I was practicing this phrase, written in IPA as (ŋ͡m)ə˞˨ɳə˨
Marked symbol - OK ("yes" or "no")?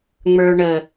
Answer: yes